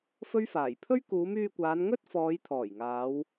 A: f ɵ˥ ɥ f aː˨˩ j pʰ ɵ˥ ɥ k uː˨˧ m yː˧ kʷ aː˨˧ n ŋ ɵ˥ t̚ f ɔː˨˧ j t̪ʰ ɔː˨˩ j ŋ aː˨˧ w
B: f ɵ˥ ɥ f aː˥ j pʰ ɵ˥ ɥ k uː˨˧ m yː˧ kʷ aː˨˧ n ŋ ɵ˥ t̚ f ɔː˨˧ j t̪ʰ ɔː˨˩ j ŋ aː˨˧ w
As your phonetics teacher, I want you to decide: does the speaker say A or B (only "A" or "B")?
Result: A